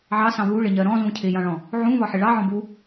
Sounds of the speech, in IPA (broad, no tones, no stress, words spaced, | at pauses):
ʕɑsɑ̃ βuɭɪɲɜ ɾɔ̃zũ cʰɪjɑ̃ɭɔ̃ | ʕũβɒħɪ ɭɑʕɔ̃ bu